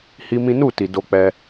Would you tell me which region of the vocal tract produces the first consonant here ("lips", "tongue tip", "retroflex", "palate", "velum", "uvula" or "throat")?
throat